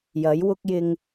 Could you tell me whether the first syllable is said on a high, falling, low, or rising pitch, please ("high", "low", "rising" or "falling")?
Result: rising